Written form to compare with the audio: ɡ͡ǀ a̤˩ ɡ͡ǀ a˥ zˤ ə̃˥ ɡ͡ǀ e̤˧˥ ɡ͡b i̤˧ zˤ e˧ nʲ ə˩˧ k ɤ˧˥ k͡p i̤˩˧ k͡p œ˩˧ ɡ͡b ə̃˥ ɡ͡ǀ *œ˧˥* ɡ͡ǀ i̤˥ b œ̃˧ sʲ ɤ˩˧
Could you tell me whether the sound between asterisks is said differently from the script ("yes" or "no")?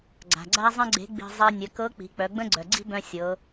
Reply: yes